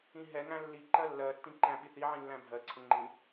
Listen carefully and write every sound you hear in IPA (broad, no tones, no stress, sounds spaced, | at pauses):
ĩ ɦ ɛ ŋ æ̃ lː i ǃ ɜ lː ɜ tː ĩ ǃ æ̃ ɓ i θ i ʕ ĩ lː æ̃ bʱ ɜ ǀʰ ə̃ ŋ͡ǃ ĩ